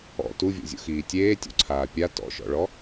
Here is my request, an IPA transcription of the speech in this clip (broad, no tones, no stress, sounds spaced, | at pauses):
ɔ̰ t u vʲ o̰ zʲ o̰ x iː tʲ eː tʲ o̰ ǀʰ aː pʲ a t ɔ̰ ʃ ɔ̰ ɭ ɔ